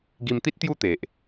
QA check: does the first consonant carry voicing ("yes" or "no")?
yes